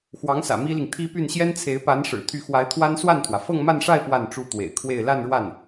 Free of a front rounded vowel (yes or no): no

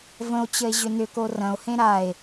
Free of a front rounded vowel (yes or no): no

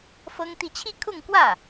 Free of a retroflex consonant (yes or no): yes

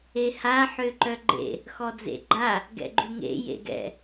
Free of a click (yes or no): no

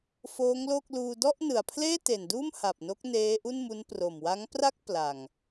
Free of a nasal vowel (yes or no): yes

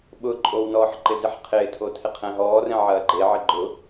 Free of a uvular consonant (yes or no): no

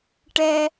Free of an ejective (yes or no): yes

